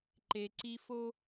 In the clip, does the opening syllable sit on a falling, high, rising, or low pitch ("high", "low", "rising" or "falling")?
low